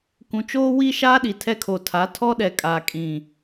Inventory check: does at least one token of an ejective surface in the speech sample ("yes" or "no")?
yes